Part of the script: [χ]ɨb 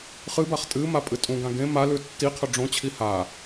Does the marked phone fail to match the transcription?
no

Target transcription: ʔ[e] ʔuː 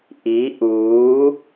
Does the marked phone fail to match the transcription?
yes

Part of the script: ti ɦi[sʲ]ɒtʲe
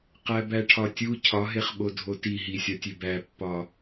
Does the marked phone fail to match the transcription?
no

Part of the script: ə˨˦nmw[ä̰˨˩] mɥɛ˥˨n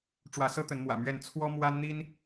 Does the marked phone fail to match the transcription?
no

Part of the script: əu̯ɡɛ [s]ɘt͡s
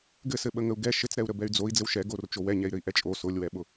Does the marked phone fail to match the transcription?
yes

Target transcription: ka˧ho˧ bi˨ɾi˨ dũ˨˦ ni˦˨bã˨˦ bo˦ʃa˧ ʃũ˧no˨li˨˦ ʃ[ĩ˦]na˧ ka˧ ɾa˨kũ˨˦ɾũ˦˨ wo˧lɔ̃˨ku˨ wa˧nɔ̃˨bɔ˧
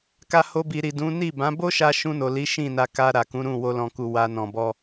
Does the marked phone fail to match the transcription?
yes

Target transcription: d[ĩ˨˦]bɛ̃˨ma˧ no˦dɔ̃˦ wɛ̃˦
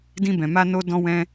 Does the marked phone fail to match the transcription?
yes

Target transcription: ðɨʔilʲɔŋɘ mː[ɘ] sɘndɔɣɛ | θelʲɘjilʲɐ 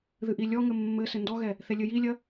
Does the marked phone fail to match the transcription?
no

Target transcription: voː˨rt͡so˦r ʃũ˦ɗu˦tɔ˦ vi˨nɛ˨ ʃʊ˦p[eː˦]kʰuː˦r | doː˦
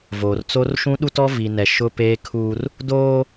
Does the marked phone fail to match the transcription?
no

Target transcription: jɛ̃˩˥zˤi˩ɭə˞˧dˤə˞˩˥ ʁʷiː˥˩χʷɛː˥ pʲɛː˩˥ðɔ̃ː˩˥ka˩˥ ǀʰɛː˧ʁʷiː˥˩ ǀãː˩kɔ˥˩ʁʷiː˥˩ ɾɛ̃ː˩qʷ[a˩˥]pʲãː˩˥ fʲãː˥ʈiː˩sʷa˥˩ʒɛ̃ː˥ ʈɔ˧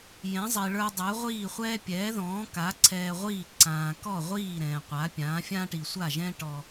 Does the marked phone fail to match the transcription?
no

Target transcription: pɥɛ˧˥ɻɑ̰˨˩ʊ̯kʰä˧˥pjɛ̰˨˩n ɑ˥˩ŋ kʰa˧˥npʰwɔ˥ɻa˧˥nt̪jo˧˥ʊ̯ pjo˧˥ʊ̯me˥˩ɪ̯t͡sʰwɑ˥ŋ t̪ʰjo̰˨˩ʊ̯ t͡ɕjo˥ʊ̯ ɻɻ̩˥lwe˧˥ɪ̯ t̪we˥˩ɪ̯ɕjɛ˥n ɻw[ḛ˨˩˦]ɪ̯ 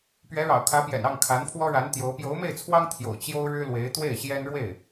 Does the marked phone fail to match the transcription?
yes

